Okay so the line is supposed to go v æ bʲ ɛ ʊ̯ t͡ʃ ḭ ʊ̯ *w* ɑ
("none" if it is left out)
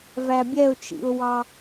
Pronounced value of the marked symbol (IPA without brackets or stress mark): w